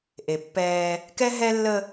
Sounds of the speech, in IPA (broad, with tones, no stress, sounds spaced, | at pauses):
ʔ e˨ pː ɛː˦ | k ɛ˦ ɦ ɛ˦ lː ə˦